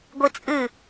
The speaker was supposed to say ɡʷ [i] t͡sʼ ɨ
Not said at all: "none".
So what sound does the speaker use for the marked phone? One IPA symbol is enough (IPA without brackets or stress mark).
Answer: i